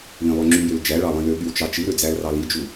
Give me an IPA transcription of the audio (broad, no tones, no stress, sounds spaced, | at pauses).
l ĩ lˠ ø ŋ͡ǁ y j ø l d͡ʒ æ ɭ ɑ lˠ ĩ l ø ɠ y w t͡ʃ ɑ t͡ʃ i ɾ ø d͡z æ l r ɑ l i d͡ʒ u